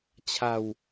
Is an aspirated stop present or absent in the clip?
present